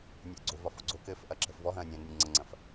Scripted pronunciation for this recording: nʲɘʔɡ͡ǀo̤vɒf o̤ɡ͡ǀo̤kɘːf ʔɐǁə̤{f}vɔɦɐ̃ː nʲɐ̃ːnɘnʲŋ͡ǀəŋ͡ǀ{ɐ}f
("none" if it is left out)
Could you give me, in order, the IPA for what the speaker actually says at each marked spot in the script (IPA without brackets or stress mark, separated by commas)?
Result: f, ɐ̃